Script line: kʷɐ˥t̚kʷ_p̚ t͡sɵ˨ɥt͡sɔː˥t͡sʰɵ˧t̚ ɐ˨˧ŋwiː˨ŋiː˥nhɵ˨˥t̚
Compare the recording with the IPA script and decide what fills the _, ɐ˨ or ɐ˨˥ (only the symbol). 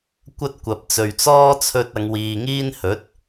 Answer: ɐ˨